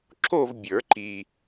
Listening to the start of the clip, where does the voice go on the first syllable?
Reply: falling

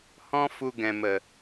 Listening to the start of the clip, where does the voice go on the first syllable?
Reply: high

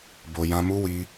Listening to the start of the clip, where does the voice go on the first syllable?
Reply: low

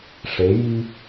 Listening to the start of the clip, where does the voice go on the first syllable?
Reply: rising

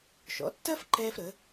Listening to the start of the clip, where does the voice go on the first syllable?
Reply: rising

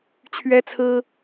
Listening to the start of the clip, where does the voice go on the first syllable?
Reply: high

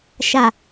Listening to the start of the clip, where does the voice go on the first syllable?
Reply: low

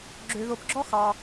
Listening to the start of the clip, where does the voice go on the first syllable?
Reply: low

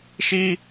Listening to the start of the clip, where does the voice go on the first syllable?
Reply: high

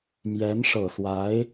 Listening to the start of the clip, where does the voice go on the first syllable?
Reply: rising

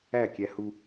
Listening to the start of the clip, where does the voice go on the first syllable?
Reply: falling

